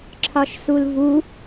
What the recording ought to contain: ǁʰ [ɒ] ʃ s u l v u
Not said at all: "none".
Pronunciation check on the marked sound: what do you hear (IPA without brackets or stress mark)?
ɒ